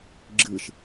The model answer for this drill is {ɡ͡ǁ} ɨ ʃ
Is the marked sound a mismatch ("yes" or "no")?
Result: no